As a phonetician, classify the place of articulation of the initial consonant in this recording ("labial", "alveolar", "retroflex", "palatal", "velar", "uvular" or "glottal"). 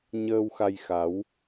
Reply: palatal